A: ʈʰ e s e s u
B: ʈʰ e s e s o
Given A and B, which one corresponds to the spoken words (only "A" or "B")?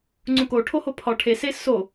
B